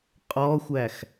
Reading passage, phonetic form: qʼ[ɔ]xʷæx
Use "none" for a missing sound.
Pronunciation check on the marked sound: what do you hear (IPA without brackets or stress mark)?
ɔ